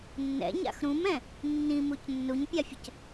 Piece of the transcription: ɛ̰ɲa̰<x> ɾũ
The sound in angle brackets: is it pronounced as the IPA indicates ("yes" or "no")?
yes